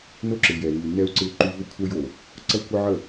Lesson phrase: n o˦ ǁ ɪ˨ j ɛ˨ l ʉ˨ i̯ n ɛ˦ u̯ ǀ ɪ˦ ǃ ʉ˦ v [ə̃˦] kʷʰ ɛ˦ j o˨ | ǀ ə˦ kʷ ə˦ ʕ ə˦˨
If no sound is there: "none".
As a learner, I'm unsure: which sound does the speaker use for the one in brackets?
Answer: ə˦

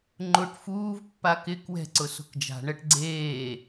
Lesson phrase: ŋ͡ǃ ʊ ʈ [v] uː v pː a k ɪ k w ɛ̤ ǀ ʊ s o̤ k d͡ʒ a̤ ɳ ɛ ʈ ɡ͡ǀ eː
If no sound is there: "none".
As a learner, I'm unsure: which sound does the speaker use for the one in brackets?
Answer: f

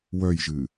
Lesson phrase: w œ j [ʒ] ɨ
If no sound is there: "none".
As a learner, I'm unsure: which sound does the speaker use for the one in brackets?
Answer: ʒ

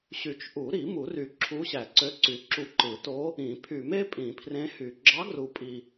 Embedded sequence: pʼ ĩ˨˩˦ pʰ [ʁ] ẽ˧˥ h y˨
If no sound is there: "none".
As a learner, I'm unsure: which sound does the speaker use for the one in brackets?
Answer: r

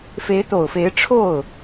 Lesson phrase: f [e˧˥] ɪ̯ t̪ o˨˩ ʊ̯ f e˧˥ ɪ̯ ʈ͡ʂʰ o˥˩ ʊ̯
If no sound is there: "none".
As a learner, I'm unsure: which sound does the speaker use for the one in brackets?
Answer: e˧˥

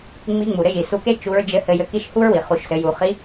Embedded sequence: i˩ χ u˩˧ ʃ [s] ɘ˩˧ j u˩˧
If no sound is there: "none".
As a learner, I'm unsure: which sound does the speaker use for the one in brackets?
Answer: s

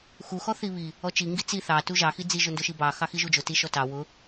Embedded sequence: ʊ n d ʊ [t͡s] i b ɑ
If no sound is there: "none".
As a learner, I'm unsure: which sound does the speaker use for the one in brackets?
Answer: ʃ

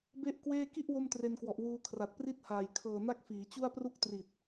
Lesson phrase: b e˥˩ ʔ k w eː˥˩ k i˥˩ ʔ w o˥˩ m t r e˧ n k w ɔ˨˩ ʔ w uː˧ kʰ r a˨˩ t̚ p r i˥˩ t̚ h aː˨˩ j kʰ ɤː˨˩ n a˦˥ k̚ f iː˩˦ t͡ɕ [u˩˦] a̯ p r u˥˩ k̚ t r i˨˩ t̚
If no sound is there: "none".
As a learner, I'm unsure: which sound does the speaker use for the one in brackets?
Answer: u˥˩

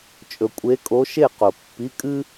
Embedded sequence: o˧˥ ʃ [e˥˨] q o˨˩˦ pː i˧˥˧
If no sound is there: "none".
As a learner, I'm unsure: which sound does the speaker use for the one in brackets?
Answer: e˥˨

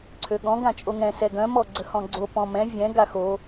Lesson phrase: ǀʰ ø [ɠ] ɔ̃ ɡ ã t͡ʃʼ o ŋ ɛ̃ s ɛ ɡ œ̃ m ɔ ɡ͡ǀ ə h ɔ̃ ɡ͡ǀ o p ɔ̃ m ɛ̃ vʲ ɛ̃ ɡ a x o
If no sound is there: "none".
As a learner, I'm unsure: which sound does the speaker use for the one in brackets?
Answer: ɠ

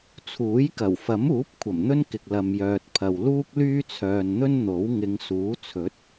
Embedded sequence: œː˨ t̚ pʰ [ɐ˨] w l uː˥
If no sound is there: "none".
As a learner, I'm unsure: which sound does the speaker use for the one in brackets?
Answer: ɐ˨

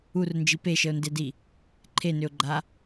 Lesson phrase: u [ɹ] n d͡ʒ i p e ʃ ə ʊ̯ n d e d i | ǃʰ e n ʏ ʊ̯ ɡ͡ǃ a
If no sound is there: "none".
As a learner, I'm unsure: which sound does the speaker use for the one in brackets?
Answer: r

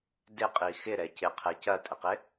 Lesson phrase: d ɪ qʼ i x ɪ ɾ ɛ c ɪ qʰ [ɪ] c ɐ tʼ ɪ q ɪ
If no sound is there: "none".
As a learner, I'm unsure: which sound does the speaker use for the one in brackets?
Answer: ɛ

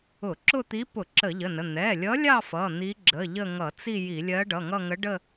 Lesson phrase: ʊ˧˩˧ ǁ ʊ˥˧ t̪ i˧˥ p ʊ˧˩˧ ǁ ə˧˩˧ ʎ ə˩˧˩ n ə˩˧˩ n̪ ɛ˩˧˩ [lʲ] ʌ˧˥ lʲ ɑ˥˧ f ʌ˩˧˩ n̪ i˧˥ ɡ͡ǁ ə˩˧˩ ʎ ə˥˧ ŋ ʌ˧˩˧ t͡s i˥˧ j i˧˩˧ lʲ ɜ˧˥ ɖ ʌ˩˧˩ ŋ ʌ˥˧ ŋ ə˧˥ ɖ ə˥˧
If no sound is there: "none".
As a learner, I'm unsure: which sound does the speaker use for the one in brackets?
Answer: lʲ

